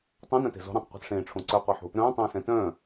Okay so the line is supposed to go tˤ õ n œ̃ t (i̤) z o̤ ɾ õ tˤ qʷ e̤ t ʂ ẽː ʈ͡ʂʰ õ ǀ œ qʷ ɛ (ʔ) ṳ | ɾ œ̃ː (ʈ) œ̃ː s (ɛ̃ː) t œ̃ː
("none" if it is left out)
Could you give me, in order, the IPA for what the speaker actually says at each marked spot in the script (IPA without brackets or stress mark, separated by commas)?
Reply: e̤, ħ, tˤ, ɛ̃